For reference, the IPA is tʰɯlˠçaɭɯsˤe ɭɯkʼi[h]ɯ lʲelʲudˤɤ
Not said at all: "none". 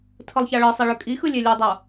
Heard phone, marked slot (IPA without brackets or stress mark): x